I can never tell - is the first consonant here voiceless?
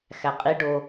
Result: yes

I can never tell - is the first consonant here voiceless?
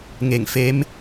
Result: no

